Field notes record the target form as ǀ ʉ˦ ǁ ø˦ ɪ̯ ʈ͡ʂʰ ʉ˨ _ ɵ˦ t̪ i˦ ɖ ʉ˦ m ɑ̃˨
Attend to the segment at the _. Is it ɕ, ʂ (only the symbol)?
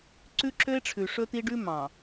ʂ